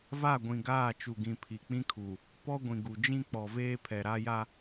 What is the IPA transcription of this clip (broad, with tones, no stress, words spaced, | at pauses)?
va˦˨ɡʷĩ˨ ɡaː˦˨t͡ʃu˨ɡĩ˨ pʰi˨k͡pĩ˦kʰu˨ | pɔ˦ ɡʷĩ˨ ɡu˨ d͡ʒĩ˦ k͡pɔ˨ veː˦pʰɛ˨ɾa˦ja˦